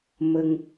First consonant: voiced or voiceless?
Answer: voiced